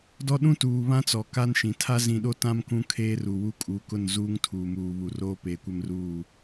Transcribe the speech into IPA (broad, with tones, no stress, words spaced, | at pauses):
dɔ˦ ɗũ˦tuː˨βã˦ t͡sɔ˨ka˦nʃĩ˨ tʰa˦zĩ˨ɗo˦tã˦m kũ˦kʰeː˦ru˨wu˦ kʼu˨˦kʊ˦˨n zuː˦ŋ tʰuː˨muː˨βu˨ roː˦peː˨kʷɛ˦mruː˦˨